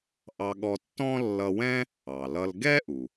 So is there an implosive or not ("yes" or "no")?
yes